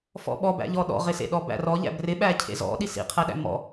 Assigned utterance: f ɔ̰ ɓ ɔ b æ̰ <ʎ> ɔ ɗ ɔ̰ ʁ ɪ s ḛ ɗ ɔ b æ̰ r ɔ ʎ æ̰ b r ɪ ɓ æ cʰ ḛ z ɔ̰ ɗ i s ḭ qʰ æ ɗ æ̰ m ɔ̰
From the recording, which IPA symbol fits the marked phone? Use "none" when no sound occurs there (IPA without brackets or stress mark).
ʎ